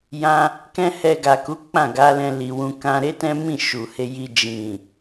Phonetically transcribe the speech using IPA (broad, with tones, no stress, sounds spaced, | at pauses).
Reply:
j ã˧ | k ɛ̃˦ h ɛ˧ ɡ a˨ k u˨˦ k͡p ã˦˨ ɡ a˨˦ l ɛ̃˧ l i˨ w ũ˧ k ã˧ ɾ e˦ t ɛ̃˦ m ĩ˦˨ ʃ u˨ h e˧ j i˧ d͡ʒ ĩ˨